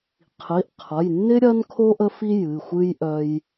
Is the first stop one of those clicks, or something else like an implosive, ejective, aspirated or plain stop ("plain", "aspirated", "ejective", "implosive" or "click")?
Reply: aspirated